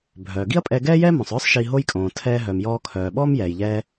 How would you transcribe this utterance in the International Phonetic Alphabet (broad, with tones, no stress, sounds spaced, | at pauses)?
bʱ œː˩ ɡ i˥ ɐ̯ pʼ ɛ˧ ɡ ɛː˥ j ɛː˥ m õ˩ sˤ œː˥ sˤ ʃ i˧ ɦ o˥ j kʼ õː˩ tʰ ɛː˧ ɦ œ˩ m j ɔː˧ kʰ œː˩ ɓ ɔː˥ m j ɛː˩ j ʎ ɛː˧